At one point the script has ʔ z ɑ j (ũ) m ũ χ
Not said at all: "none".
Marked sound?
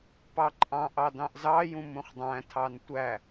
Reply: ũ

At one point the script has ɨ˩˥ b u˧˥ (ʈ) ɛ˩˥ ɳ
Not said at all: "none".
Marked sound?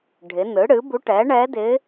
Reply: ʈ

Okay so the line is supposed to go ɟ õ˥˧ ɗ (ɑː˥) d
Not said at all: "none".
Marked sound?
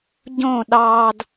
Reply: ɑː˥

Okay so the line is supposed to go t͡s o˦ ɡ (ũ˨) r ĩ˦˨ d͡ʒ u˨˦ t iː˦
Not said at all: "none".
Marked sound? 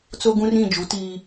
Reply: ũ˦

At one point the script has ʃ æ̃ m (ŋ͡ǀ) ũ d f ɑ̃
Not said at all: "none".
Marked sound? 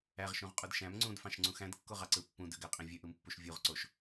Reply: ŋ͡ǀ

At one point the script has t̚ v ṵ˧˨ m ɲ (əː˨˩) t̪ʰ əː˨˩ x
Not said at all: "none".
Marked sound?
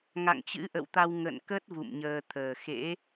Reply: əː˧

